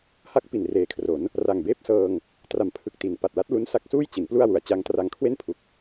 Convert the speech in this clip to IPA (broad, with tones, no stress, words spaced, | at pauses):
ha˦˥k̚ pi˨˩nreː˨˩kʰro˩˦n | ra˨˩ŋbeː˥˩p̚sɤː˧ŋ | tra˨˩mpʰɯ˨˩k̚ti˩˦n pa˨˩t̚la˦˥t̚ lu˦˥nsa˦˥k̚suː˥˩jt͡ɕi˩˦n plu˥˩a̯wu˨˩a̯t͡ɕa˦˥ŋtra˦˥ŋ kʰwe˥˩npʰu˨˩k̚